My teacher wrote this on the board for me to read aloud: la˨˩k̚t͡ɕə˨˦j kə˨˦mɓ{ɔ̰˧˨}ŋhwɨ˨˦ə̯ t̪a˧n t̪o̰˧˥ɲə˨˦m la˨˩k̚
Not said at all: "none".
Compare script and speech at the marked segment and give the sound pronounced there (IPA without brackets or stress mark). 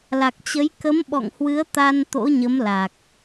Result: ɔ̰˧˨